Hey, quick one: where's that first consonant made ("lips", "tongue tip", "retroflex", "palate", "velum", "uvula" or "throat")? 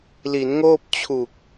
tongue tip